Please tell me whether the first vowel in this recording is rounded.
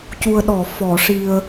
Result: yes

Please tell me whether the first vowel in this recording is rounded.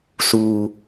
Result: yes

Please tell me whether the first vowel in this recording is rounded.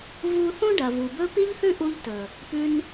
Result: yes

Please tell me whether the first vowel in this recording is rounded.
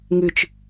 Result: no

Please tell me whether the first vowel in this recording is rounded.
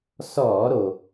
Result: yes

